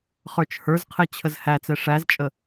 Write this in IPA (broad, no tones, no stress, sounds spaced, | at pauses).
χ ə˞ t͡ʃ h ə˞ z qʰ ɛ t͡ɕʰ ə z h æ t͡s ɛ ʂ æ z t͡ʃʼ ə